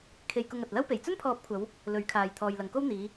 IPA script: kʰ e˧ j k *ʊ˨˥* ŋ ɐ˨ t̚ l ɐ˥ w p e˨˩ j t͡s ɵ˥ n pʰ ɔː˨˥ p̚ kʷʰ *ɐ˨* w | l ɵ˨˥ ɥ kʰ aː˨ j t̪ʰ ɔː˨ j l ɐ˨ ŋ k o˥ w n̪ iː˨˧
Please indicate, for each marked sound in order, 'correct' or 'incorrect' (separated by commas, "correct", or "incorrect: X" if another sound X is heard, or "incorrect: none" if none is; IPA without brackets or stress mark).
incorrect: ʊ˧, incorrect: ɐ˨˧